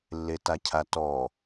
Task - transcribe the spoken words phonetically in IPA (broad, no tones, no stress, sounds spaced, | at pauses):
lː e t a cʰ a t ɔ